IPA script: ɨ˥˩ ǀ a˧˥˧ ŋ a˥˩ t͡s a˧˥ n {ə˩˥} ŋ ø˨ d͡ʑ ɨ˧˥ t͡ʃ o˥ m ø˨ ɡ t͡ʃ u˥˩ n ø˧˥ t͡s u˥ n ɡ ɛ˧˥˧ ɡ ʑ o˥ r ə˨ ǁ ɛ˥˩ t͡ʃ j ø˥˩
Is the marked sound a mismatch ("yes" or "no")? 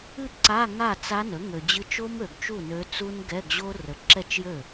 no